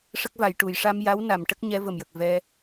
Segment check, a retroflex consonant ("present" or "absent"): present